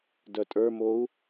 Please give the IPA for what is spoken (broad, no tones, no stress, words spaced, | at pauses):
dœtʼə˞mou̯